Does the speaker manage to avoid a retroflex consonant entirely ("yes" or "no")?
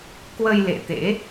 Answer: yes